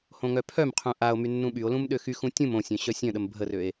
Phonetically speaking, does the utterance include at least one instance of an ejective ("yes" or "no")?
no